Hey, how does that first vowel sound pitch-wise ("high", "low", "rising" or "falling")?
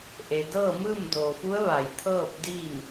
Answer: low